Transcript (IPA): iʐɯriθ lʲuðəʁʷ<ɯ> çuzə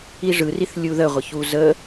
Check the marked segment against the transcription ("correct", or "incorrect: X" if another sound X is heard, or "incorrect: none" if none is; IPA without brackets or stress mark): incorrect: ə